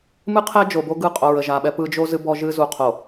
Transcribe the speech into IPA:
m ɨ˦ qʰ ɛ˦ d͡ʒ o˨ b o˦ ɡ ɯ˦˨ qʼ o˨ ɹ ə˨ ʒ a˨ ɓ ɛ˦ p ɯ˦ d͡ʒ o˦ z ɨ˦ b ɔ˦ ʒ ɨ˦ z u˨ qʰ o˨

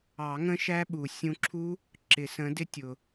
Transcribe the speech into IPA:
ɑ˨˩˦ ŋ ə̃˦˥ ʃ æ˦˥ ɓ u˩ sʲ ũ˧ ǁʰ u˦˥ | ǁ ɪ˨˩˦ s ə̃˨˥ d ɪ˦˥ tʲ ʊ˩

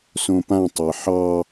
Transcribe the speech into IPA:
s õ p ã tˤ e ħ ɑ

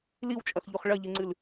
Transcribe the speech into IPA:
l i w t͡ʃʼ ɐ x ʎ u χ ɭ ɐ ʎ ɨ ŋ͡ǀ ɨ l

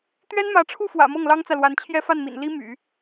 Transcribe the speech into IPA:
t̪ ɥ ɛ˥ n m ä˧˥ ʈ͡ʂʰ u˥˩ f w ä̰˨˩ m ɤ˥˩ ŋ l ɑ˥ ŋ t͡s ä˨ l w a˧˥ n t͡ɕʰ j ɛ˥ f a˥˩ n m ḭ˨˩ n l i˥ m y̰˨˩˦

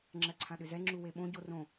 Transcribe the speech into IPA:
ŋ͡ǁ ɜ ǀʰ ã ɗ ʏ z ɛ ŋ͡ǁ u w e ɓ õ ɟ o r õ

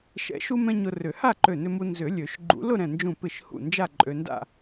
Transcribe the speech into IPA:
ʃ ɛ̰˨˩˦ ʃ u˧ m ɛ̃˧ ɲ ʊ˧ r ʏ˨˩˦ h a˥˧ ǃ ø˧˩ n ʏ˧ m u˧ n z ʏ˨˩˦ lʲ ø˨˩˦ ʃ ɡ͡ǃ ṵ˨˩˦ l ʊ˥˧ ɾ ɛ̃˧˩ n d͡ʒ ũ˧˩ p ɪ˧˩ ʃ h ṵ˧˩ n d͡ʒ a˥˧ ǃʼ ø˧ n d a̰˥˧

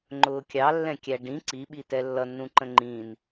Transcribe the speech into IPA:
ŋ͡ǃ ʊː kʲ ɑ lː ɛ̃ kʲ æ ɖ ĩ ǀ i ɓ i t ɛ lː ʌ nː ũ ǃ ə̃ ŋ͡ǃ ĩː n

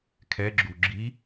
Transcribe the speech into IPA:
kʰ ɛ ɡ͡ǁ u ɡ͡ǁ i

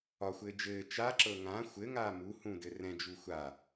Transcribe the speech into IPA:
ɒ xʷ ɘː d͡ʒ ɘː t͡ʃ a ǁ ɤ ŋ ã xʷ ɘ ŋ aː m u h ũ d ɘ r ɛ̃ d͡ʒ u xʷ a

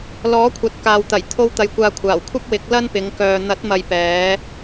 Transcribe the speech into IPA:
l ɔː˨˥ kʷʰ ɐ˨ t̚ k aː˨ w t̪ ɐ˨˩ j t̪ʰ o˥ w t̪ ɐ˧ j kʷ aː˧ kʷʰ aː˨˩ w kʷʰ ɐ˥ p̚ w ɪ˨˥ k̚ l ɐ˥ n p ɪ˨˧ ŋ k œː˨ n̪ ɐ˨˥ t̚ m ɐ˨ j p ɛː˨˧

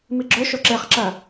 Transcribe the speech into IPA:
m i ɡ͡ǁ ɵ ʃ o ǁ e χ ǁ ɐ

